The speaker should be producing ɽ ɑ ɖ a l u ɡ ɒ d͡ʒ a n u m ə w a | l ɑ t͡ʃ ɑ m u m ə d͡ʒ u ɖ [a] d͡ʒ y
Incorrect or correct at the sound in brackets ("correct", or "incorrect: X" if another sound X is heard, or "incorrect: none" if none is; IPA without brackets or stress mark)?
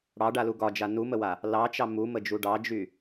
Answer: incorrect: ɑ